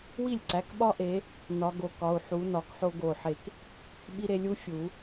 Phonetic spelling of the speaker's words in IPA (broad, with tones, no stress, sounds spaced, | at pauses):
w i˥˩ lʲ ǀ æ˩˧˩ k ɓ ɒ˥ ʔ e˨˦ | n ɒ˨˦ ɡ o˨˦ k ɒ˩˧˩ u̯ ħ u˨˦ n ɒ˨˦ k ħ o˥ ɡ o˧˩ ħ e˧˩ k | ɓ i˥ ɾ e˥ lʲ u˥ fʲ u˨˩˦